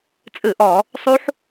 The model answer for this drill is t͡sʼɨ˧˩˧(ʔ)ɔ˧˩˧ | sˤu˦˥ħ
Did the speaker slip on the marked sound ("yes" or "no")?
no